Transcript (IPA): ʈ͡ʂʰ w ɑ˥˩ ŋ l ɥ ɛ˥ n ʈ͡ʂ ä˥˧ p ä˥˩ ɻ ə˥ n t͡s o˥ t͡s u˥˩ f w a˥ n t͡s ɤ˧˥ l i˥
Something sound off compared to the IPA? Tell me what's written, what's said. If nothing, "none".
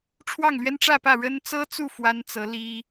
o˥ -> ɤ˥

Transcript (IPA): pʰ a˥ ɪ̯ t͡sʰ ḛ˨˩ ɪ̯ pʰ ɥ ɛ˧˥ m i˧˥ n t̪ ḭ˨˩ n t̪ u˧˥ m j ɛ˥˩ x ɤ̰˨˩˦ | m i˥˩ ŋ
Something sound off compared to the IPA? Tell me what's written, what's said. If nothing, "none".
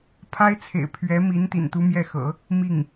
none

